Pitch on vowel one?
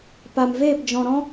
low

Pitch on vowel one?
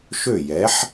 falling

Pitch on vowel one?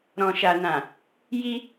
low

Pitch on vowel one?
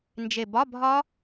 low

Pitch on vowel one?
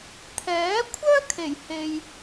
rising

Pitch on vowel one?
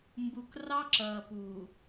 low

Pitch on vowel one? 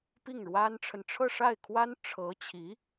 falling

